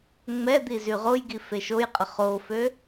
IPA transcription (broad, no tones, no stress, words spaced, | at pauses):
ŋ͡mɛd̪i zyʁojɡi feʃojqʼə χofø